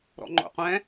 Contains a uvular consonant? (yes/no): yes